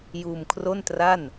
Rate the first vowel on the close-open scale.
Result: close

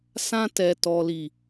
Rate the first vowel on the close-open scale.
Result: open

